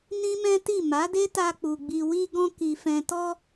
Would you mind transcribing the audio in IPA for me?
n ĩ˦ m ɛ̃˦ t i˦˨ m a˨˦ d e˦ t a˧ k͡p u˨ ɡ͡b i˨ w i˧ ɡ ɔ̃˧ k i˨ f ɛ̃˨ t ɔ˧

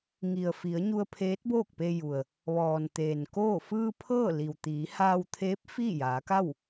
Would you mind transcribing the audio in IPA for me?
ŋ i˩ ə̯ f i˩˧ ə̯ ɲ u˧ ə̯ pʰ eː˧˥ t̚ b oː˥˨ k̚ p e˧ j u˩ ə̯ | ʋ ɔː˩ n t̪ eː˩ n k oː˥˨ f ɯː˧ pʰ ɤː˥˨ l i˩ w t̪ iː˩˧ h aː˧ w t̪ʰ eː˧˥ p̚ f iː˥˨ j aː˩˧ k a˥˨ w

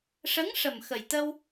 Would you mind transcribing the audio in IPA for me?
ʂ ə˧˥ ŋ ʂ ə˨˩ m x ə˨˩ j t̪ ə˧ w

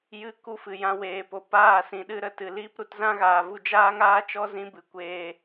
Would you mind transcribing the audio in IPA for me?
j ɨ˦ k u˧ f ɨ˨ j ã˧ w eː˨ p o˨ p aː˦˨ s ĩ˨ ɗ ɨ˧ ɾ ə˨ t ɨ˨ l iː˦ p ɾ u˧ t z ã˦ ɣ aː˨ v u˧ d͡ʒ aː˦ ŋ aː˦ t͡ʃ ɔ˦ z ĩ˦ b ɨ˨ kʷ eː˧

